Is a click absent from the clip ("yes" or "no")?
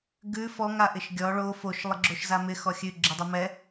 no